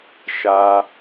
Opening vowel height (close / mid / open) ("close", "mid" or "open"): open